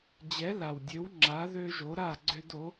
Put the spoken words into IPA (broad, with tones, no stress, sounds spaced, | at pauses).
d͡ʑ ɛ˨˥ l a˨˩ w dʲ ø˨˥ w ŋ͡ǁ a˨˥ ð ø˦ ʒ o˨˥ ɾ a˥˨ ɡ͡ǀ ø˦ d o˨˥